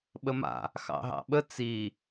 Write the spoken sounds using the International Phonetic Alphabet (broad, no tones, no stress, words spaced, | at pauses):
ɓəma̰ | xɑ̰ɦɑ̰ɓə t͡si